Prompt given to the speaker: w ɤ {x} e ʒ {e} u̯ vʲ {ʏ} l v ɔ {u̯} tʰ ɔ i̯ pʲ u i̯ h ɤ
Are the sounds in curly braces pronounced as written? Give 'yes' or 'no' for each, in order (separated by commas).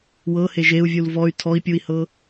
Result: no, yes, no, no